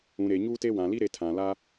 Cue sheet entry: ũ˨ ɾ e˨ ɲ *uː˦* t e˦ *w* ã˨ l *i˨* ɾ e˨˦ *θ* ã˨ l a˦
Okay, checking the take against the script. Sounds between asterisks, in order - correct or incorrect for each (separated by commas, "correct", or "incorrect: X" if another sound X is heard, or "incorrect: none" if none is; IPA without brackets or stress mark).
correct, correct, incorrect: i˦, incorrect: tʰ